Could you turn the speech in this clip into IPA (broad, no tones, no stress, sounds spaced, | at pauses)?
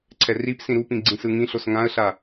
ǀʰ ɛ r i p s ĩ ɾ u p ĩ ɡ͡ǀ ĩ s ɯ ŋ ĩ ɬ o s ŋ ã ə̯ ɬ a